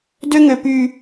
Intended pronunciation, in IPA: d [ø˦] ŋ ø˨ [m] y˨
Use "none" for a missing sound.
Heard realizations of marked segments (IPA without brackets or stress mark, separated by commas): ø˦, p